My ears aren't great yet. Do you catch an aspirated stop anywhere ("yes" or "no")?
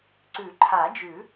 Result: yes